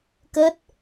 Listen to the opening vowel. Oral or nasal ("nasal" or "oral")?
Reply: oral